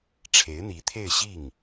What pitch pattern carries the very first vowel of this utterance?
rising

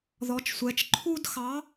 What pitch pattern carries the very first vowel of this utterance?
rising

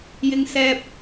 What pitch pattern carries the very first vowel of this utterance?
high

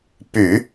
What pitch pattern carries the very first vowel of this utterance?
low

